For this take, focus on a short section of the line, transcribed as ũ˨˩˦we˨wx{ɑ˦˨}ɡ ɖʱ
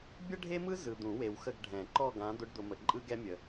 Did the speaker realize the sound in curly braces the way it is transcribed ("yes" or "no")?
no